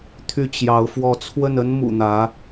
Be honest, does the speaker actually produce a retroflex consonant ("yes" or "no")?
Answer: no